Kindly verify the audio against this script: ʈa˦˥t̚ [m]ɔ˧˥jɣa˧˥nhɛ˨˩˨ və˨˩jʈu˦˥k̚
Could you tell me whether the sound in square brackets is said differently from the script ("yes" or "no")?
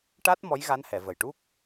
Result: no